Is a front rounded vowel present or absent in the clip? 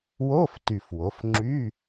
present